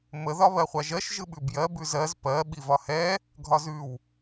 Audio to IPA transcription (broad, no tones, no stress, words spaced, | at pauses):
mə ðɒβɜχʷaʒɜʃ ʒɯɓʉbjɜ bʉzɜz pɜ ɓivɒhɛ | ɡʱɒzʉw